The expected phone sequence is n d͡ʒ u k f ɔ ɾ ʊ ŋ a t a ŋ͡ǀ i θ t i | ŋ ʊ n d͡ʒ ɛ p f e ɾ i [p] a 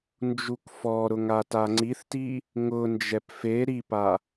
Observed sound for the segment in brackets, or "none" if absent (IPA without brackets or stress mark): p